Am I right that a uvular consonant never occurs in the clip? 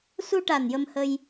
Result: yes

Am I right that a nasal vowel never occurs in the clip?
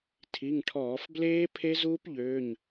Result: yes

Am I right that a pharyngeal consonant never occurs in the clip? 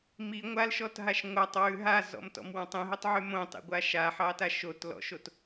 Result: no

